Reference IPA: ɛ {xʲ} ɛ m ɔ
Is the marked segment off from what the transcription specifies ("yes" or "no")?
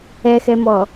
yes